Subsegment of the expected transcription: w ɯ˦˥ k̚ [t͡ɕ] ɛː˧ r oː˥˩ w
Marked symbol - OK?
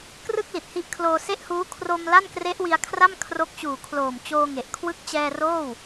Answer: yes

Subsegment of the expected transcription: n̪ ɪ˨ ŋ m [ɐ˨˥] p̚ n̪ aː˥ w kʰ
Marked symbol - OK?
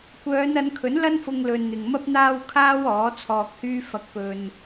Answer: no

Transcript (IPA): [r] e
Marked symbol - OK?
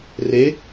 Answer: yes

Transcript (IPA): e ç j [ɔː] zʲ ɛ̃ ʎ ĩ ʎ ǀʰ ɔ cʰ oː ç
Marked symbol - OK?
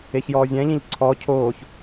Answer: yes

